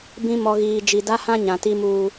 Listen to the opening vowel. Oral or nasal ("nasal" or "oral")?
nasal